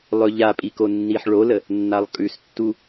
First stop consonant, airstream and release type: ejective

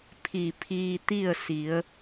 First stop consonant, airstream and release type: aspirated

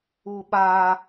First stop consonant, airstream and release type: implosive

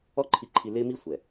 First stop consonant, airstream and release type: click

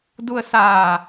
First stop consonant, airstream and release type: plain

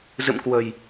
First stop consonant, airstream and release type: plain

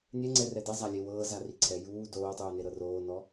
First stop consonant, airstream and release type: click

